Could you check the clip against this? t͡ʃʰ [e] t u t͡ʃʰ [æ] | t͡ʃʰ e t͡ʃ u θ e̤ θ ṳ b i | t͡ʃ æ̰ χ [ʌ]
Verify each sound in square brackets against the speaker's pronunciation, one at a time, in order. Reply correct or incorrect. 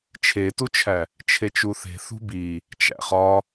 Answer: correct, correct, incorrect

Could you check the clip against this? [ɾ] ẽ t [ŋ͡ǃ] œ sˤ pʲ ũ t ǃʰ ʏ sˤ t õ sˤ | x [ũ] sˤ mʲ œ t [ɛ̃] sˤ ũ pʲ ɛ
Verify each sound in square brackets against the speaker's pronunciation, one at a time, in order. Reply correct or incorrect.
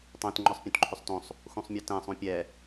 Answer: incorrect, correct, correct, correct

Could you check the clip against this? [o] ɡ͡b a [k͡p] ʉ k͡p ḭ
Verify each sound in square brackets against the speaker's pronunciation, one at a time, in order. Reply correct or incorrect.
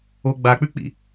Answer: correct, correct

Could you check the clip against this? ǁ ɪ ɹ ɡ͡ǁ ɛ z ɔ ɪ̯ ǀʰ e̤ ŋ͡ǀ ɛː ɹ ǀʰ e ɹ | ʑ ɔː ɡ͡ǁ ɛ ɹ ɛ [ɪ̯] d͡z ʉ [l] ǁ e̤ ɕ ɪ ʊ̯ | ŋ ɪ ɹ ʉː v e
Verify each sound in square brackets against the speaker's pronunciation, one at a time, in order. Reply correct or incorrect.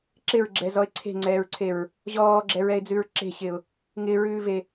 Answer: correct, incorrect

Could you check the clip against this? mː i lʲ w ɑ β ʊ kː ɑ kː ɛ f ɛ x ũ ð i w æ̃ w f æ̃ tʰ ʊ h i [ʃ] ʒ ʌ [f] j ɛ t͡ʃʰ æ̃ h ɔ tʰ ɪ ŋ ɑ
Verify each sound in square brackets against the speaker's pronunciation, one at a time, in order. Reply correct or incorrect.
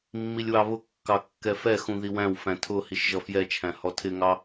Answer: correct, correct

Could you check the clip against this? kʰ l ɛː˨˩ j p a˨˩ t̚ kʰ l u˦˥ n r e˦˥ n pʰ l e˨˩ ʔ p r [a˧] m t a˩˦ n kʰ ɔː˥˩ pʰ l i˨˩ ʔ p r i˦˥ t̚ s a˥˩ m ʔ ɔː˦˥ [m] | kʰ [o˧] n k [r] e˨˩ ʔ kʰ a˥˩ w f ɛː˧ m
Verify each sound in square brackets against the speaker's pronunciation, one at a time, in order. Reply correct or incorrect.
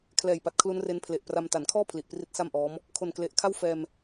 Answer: correct, correct, incorrect, incorrect

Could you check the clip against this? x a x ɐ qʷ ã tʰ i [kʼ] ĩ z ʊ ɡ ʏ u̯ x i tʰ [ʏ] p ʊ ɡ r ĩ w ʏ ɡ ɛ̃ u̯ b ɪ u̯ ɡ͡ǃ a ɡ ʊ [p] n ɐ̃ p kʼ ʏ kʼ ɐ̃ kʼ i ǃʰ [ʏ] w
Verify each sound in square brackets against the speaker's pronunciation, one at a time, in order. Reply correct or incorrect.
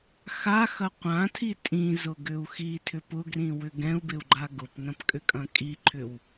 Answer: incorrect, correct, correct, correct

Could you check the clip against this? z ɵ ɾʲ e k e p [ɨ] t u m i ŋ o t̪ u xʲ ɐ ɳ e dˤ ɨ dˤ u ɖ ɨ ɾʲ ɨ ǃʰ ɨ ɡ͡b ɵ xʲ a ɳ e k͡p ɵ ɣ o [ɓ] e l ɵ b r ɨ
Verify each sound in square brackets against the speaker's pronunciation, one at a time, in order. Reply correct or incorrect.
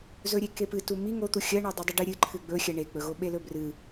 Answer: correct, correct

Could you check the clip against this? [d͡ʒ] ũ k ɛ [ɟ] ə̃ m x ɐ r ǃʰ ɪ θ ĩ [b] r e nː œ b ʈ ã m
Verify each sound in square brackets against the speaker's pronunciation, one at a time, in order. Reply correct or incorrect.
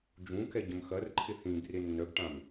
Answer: correct, correct, correct

